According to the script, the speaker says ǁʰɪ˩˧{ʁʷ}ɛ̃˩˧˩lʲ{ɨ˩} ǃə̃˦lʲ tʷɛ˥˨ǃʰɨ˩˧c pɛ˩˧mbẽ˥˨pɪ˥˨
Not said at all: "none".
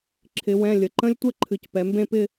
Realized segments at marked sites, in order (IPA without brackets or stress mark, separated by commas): w, ə˩